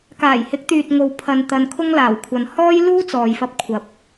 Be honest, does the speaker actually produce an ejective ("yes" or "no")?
no